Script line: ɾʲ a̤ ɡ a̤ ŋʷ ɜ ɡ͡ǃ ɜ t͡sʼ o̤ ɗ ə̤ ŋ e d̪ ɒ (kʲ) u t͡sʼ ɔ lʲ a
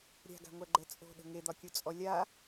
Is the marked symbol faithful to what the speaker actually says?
yes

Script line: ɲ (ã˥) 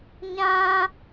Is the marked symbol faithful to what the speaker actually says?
yes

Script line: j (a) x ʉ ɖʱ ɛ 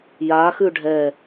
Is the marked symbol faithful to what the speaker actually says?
yes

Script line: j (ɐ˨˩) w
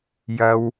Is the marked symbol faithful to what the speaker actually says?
no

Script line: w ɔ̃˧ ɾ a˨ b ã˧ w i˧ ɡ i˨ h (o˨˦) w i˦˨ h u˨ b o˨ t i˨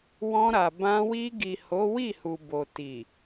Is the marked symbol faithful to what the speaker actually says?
yes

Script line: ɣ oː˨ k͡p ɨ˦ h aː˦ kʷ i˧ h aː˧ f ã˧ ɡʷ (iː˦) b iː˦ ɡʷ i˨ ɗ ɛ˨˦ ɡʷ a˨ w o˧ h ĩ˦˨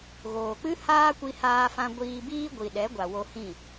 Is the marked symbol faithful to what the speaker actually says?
no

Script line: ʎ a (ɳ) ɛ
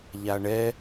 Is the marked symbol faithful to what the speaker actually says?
yes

